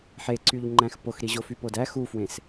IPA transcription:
ħ e ǀ y ʎ ŋ͡ǃ æ̃ x p o x ɾ i ʑ o f y p o d æ x u f w ẽ s

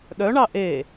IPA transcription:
ɗ œ ɳ ɑ ʔ e

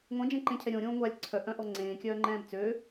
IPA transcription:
ŋʷ ẽ d͡ʒ ẽ ǃ ẽ cʰ ɛ ɾʲ õ ɾʲ õː ŋʷ a lʲ ǀʰ œ ʔ œ̃ ʔ ɔ ŋ͡ǀ ẽː kʲ œː ŋ͡ǃ ɛ̃ː b t͡s ø

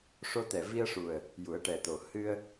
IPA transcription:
ʂ o˧ t̪ ɛ˨˩ v i˧ ə̯ ʂ u˨˩ ə̯ | j u˨˩˦ ə̯ ʈ ɛ˨˩ t̪ o˨˩ h ɨ˧ ə̯

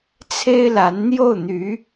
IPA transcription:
t͡sʰ e˥ ɪ̯ l a˧˥ n n̪ j o˥˩ ʊ̯ n̪ y˧˥

